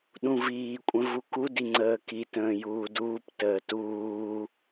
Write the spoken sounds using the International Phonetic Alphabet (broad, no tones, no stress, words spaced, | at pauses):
ɗũviːkʷʼə̃ vukudi ŋ͡ǀəːkitə̃ː juːduːptəː tuː